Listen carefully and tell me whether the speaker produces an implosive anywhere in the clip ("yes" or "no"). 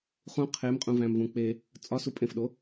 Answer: yes